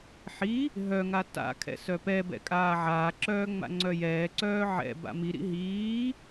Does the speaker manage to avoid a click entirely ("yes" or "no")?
no